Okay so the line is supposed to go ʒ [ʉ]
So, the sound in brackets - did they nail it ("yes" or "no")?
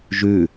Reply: yes